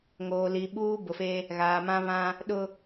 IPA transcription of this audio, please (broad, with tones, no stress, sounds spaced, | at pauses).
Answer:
ŋ oː˨ l i˨ ɓ uː˦ b ʊ˨ f e˦ | ɣ aː˨ m ã˦ β ã˦ | ɗ ʊ˨